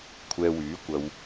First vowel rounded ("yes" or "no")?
no